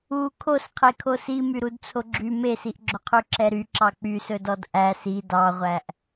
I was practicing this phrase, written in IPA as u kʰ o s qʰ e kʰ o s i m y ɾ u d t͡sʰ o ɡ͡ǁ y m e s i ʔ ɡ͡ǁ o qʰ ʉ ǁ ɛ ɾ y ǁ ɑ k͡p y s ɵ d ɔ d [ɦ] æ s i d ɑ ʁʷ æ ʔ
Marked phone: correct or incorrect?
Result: incorrect: ʔ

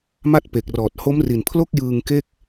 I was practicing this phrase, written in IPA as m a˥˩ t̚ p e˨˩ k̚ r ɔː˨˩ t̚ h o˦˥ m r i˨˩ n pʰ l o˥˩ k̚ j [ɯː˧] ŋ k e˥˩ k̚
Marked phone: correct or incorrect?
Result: correct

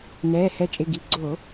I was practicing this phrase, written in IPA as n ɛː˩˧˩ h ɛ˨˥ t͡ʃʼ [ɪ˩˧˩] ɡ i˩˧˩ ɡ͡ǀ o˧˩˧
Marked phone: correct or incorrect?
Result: correct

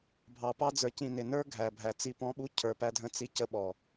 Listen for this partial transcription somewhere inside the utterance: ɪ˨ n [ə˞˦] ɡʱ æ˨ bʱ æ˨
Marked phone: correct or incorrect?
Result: correct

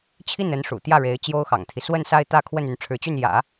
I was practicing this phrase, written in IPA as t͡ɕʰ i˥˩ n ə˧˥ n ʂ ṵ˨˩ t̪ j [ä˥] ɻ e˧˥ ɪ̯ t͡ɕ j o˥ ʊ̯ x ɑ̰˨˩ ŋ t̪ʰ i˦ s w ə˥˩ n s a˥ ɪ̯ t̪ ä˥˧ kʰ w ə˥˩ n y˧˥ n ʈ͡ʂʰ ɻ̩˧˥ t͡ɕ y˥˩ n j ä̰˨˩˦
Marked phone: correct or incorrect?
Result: incorrect: ä˥˩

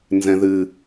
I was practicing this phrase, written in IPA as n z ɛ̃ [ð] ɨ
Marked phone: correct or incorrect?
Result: correct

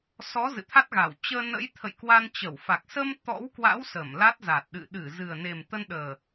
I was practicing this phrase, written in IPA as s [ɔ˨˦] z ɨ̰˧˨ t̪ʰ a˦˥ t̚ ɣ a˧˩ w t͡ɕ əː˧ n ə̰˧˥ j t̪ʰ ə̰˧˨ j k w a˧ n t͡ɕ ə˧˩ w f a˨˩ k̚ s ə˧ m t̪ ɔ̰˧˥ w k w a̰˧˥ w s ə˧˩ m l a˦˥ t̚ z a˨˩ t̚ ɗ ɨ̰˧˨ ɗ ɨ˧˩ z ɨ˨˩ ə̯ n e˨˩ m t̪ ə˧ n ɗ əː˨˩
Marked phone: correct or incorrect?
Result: correct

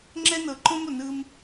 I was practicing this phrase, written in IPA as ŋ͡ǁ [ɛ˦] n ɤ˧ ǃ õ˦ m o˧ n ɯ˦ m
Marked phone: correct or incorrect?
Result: correct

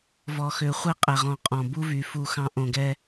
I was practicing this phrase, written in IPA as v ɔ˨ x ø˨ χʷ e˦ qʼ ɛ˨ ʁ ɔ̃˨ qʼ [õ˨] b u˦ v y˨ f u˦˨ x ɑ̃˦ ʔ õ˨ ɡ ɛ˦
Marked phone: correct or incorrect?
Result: incorrect: ɔ̃˨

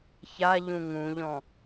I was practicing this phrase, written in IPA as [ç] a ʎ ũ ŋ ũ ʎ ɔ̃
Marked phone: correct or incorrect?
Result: correct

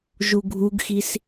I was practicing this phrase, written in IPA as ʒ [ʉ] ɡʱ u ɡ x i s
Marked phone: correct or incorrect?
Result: incorrect: u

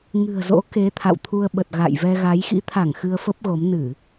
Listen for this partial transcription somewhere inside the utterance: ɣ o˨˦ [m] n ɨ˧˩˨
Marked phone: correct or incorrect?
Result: correct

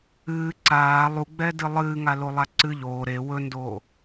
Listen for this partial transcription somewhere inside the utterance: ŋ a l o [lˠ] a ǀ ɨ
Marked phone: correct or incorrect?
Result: correct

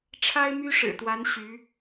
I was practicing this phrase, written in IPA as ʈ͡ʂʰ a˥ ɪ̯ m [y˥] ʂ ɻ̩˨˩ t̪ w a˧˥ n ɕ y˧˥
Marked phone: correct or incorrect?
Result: correct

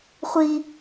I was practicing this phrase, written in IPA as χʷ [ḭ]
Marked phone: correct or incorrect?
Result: incorrect: i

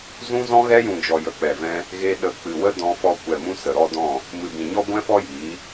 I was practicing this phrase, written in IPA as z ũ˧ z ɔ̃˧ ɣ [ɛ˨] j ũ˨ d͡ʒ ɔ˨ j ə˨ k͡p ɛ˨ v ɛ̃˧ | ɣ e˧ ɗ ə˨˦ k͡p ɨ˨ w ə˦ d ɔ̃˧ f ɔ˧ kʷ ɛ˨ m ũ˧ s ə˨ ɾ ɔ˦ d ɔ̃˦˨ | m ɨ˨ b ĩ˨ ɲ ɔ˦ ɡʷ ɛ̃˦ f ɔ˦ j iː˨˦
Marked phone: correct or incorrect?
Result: incorrect: ɛ˧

